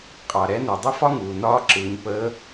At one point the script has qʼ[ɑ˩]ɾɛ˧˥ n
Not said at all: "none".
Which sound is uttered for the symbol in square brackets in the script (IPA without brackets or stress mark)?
ɑ˩